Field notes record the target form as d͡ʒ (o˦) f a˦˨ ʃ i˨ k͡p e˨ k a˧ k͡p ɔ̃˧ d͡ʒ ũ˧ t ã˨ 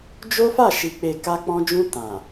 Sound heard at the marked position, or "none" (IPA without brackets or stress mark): o˦